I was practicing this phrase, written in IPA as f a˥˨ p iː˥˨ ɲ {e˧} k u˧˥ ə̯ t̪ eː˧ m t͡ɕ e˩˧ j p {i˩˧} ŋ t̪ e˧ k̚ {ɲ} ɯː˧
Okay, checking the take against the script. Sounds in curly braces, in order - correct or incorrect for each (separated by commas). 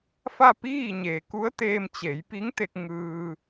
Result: incorrect, incorrect, incorrect